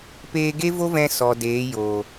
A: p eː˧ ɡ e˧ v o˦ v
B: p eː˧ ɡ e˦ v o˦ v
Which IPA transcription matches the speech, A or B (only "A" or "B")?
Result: B